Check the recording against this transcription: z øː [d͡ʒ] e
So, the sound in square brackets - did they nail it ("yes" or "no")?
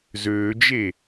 yes